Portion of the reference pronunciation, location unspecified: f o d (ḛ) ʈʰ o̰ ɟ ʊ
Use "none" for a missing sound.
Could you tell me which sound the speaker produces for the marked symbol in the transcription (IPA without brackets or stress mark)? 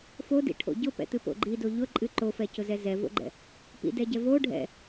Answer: ḭ